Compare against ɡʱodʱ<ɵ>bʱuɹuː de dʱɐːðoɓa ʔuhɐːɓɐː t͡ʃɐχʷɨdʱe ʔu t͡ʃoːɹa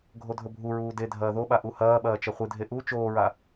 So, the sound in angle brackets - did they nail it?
yes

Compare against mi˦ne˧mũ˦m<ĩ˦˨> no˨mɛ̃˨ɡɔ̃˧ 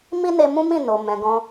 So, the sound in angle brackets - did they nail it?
yes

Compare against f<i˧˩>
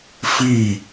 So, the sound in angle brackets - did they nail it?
yes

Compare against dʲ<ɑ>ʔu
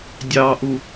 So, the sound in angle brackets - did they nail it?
yes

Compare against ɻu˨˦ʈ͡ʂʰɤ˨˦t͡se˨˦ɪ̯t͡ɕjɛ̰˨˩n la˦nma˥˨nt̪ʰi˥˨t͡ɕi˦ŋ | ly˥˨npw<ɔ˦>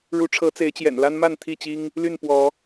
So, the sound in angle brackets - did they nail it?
no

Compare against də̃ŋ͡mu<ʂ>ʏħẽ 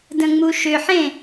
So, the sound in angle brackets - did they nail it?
no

